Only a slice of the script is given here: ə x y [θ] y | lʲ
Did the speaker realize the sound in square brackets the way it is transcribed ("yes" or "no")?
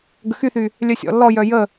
yes